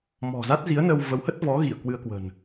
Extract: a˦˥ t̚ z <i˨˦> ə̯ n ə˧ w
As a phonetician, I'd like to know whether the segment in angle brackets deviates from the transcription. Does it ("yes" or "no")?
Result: no